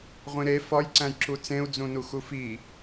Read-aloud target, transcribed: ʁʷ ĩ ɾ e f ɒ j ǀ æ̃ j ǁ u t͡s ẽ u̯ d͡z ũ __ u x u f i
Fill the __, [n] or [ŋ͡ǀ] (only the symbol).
n